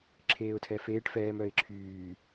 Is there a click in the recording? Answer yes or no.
yes